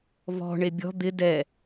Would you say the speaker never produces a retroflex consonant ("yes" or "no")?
no